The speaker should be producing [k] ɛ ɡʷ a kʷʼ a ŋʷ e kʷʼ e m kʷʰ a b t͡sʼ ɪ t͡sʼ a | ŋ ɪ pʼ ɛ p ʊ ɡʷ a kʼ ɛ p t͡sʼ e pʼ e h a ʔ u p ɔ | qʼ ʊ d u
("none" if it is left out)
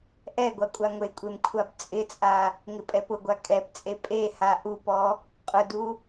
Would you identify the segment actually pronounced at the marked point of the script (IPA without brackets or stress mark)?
ʔ